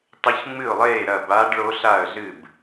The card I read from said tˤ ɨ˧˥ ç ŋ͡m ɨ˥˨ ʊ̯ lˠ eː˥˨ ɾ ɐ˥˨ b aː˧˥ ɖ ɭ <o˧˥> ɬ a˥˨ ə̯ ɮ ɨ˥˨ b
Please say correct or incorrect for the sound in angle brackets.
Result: correct